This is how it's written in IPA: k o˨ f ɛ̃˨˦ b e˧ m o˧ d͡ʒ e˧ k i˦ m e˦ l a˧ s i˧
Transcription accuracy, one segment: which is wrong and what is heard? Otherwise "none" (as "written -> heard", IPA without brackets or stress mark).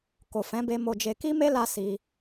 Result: none